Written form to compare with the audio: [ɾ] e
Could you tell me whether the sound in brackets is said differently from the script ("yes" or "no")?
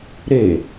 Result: no